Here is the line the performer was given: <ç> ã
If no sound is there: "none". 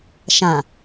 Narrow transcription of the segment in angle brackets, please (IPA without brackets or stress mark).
ʃ